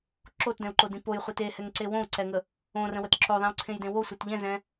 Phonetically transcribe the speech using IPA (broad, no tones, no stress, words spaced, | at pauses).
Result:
ǁotdɛ̃u̯ǃodĩ pojχʷet ehɛŋǀe wõu̯ǀɛŋə | õrə̃wət ǁoðˤẽu̯ǀʰẽjdẽ wosʷet ʎɛ̃zɛ̃